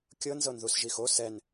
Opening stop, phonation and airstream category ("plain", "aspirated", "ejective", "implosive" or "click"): plain